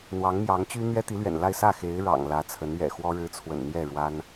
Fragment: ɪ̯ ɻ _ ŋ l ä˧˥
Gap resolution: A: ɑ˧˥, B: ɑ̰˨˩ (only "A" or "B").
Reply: B